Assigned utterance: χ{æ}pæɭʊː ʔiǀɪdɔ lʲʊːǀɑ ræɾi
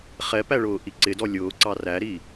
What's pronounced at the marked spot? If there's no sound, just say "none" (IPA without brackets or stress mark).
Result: ɛ